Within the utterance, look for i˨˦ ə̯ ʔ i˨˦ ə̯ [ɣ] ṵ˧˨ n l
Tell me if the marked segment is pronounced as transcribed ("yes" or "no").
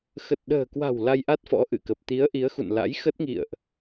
no